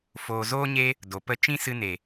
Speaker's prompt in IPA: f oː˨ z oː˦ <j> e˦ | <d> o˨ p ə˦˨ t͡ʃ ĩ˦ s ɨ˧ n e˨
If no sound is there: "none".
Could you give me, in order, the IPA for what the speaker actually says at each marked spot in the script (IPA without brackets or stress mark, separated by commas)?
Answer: ɲ, d